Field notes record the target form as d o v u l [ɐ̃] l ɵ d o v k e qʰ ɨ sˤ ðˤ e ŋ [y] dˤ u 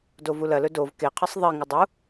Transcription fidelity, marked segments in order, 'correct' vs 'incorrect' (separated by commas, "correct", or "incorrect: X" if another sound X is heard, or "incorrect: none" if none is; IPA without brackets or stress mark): incorrect: ɐ, incorrect: ɨ